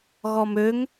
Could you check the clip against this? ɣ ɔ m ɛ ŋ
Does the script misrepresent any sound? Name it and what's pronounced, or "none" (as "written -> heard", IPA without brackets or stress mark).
ɛ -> ø